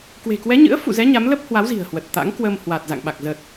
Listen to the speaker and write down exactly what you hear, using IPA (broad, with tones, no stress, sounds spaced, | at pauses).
k w e̤˨˩ k w ɛ˨˦ ɲ ɨ̰˧˥ ə̯ f ṵ˧˨ z ɛ˨˦ ɲ a˨˦ m l ə˦˥ p̚ h w a˨˦ w z i̤˨˩ ə̯ h w ə˨˩ t̚ t̪ a̰˧˥ ŋ k w əː˧ m h w a˨˩ t̚ z a̰˧˨ ŋ ɓ a˨˩ k̚ z ə˨˩ t̚